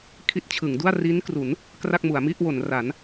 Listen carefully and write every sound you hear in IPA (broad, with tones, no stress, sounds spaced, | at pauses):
kʰ i˦˥ t̚ t͡ɕʰ ɯ˩˦ ŋ d u˥˩ a̯ r i˦˥ n k r u˩˦ n | k r a˥˩ k̚ m u˩˦ a̯ m i˥˩ ʔ w o˩˦ n r a˩˦ n